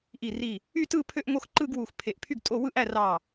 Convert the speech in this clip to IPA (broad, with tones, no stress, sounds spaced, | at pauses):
ʔ i˧˩ r i˧˩ | y˥˧ t ɯ˥˧ pʰ ø˥˧ ʔ ŋ o˥˧ x ǃ ɯ˥˧ ɡ w u˧˩ x pʰ e˧˩ ʔ pʰ y˥˧ ɡ tʼ o˥˧ w ɯ˥˧ ʔ æ˥˧ r ɑ˧˩